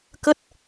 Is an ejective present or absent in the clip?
absent